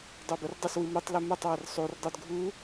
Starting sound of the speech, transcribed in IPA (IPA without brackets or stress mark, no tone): dˤ